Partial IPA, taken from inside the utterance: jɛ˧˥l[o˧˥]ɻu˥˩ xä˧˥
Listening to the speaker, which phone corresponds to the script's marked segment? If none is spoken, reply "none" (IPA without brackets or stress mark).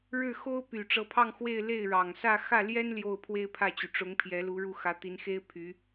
u˧˥